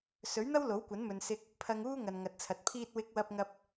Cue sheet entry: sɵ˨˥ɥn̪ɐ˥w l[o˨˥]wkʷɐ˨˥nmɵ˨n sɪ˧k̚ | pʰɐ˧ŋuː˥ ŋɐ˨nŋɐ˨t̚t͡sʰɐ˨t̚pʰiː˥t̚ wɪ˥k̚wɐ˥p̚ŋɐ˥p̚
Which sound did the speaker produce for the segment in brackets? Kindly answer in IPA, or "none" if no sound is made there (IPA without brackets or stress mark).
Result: o˨˥